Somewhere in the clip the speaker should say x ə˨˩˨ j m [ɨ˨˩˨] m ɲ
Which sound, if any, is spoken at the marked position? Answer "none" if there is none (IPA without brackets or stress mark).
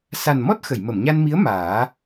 ə˨˩˨